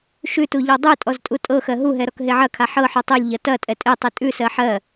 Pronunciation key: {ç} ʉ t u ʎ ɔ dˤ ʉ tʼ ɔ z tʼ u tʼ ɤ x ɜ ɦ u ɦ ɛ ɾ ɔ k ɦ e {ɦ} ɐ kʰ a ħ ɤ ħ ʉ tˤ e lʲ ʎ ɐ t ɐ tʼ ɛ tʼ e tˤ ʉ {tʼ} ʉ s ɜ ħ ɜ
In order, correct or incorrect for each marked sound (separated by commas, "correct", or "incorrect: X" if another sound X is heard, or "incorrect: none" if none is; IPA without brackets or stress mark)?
incorrect: ʃ, incorrect: ʕ, correct